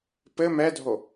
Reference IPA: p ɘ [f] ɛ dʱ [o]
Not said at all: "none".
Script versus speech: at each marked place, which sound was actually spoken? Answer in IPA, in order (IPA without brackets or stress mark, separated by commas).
m, o